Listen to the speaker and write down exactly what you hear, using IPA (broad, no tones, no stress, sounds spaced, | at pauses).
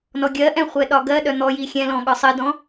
n ɔ ɡʲ ɜ ʔ ɛ̃ χʷ ɛ ɗ ɒ ɡ ɜ ɗ œ n̪ ɔ j i xʲ ɛ̃ l ɔ̃ ɠ ɒ sˤ ɜ d ɔ̃